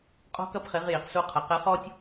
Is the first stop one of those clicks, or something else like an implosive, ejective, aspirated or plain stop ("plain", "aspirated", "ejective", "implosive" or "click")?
ejective